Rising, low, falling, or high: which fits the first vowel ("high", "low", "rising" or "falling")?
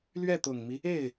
falling